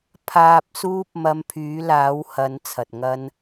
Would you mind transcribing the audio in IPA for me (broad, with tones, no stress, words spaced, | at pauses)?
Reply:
pʰaː˨p̚suː˧p̚ mɐ˧mpʰyː˨˥laː˨˥w hɐ˨˥n t͡sʰɐ˨t̚ŋɐ˥n